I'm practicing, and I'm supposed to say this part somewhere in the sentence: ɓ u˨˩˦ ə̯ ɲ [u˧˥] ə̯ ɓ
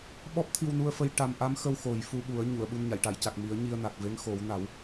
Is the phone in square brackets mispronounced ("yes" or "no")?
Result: yes